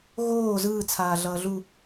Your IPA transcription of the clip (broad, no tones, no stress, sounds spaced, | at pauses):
ɣ oː z ɯː t͡sʰ aː ɮ ʌː ɮ u